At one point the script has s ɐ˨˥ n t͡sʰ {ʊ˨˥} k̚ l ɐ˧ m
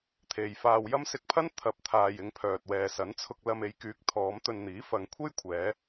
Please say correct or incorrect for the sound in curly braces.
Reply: incorrect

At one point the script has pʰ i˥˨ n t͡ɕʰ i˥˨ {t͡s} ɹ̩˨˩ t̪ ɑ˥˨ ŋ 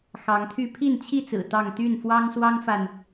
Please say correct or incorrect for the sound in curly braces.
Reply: correct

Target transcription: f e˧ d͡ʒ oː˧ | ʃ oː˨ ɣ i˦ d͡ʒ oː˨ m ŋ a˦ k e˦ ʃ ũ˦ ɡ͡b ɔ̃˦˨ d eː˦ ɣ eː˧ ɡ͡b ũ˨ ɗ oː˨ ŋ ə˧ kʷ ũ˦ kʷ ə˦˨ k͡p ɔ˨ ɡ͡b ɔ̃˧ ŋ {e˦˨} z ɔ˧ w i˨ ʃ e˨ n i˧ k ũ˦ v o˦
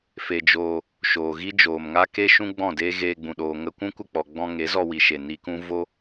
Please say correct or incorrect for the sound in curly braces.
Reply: incorrect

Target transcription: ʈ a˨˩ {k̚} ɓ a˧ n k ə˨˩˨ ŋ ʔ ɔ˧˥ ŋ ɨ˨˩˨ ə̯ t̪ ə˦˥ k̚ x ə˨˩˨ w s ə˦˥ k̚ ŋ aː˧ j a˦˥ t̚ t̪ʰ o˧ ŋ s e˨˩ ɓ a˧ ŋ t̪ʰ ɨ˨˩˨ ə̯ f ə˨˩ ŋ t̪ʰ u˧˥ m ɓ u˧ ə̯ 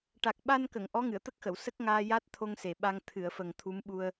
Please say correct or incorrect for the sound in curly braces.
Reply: correct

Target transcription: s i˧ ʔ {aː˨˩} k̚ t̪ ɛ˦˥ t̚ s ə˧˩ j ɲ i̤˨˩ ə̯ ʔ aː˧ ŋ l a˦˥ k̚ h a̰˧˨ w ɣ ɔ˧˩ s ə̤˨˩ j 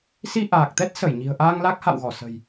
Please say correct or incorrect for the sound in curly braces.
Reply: correct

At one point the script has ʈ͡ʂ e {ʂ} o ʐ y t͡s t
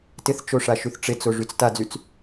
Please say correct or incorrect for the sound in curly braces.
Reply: incorrect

